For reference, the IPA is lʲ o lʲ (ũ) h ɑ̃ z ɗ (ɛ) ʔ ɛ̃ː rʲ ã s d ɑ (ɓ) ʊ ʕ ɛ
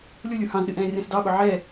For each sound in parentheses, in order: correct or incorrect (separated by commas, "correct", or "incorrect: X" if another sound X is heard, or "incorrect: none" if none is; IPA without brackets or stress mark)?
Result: incorrect: u, incorrect: ɨ, correct